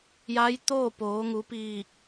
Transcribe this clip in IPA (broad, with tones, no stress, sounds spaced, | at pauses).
j a˧˥ j t̪ oː˥˨ p oː˩˧ ŋ u˩˧ p iː˧˩ k̚